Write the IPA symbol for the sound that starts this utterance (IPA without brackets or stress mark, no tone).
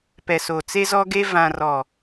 p